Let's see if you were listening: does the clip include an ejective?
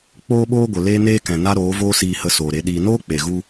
no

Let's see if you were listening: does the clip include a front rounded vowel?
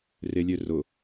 yes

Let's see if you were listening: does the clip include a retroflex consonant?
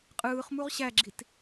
no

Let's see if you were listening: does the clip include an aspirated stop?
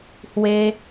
no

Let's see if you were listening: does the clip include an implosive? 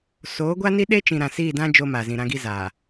yes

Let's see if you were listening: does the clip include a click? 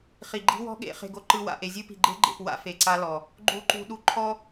yes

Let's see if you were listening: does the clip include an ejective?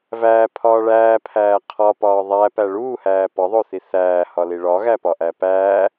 no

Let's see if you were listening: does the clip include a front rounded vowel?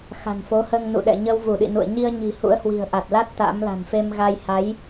no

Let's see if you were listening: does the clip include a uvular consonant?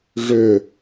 no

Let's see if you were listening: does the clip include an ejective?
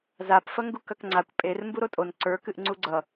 yes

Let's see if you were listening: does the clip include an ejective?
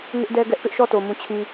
no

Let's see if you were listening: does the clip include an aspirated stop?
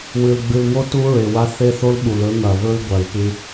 no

